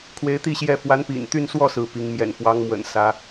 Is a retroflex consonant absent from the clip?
yes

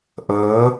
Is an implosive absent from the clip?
yes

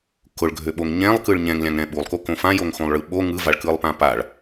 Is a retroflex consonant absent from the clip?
no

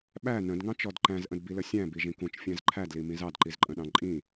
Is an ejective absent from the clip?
no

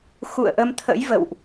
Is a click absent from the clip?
yes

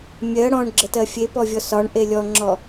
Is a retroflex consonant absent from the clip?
no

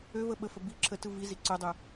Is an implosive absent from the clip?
no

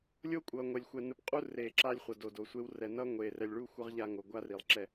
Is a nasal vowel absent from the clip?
yes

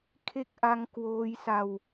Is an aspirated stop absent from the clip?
no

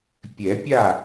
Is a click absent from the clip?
yes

